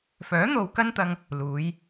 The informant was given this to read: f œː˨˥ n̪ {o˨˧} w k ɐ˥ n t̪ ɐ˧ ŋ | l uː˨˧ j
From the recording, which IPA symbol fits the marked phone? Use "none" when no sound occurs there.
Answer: o˨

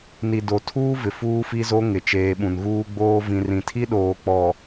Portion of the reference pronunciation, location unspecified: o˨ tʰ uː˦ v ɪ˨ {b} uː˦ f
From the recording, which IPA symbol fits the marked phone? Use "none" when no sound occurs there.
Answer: f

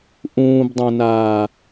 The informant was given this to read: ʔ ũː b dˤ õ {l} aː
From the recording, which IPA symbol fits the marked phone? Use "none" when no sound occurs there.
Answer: n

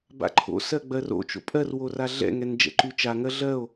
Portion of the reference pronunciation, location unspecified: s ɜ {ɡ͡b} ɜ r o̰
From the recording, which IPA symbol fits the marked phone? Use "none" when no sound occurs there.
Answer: ɡ͡b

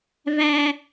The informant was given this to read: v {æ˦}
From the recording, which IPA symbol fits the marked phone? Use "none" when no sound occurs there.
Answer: æ˦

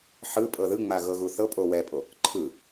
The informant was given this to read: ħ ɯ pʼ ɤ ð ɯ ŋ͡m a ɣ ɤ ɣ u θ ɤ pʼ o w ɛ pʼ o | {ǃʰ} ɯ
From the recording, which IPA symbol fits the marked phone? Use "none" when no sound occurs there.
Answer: ǃʰ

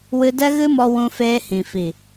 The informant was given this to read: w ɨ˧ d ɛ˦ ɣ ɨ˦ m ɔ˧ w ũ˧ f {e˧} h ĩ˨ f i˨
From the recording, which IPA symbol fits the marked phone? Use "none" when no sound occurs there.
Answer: eː˧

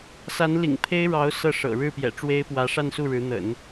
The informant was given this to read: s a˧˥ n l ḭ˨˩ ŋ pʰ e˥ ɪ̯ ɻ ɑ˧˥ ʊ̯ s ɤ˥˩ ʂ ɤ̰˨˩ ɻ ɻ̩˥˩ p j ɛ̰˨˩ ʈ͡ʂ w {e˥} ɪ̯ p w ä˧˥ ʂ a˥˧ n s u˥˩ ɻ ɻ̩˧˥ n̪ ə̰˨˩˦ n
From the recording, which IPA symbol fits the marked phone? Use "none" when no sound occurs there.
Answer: e˥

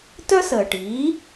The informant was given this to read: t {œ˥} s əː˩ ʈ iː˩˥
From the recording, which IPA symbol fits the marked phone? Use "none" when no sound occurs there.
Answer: œ˥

